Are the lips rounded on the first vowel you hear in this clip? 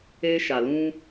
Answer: no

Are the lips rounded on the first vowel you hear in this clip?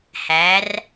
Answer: no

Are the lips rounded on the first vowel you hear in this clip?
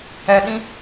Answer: no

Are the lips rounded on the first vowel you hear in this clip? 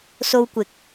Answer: yes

